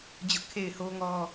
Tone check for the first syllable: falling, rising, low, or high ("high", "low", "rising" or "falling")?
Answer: high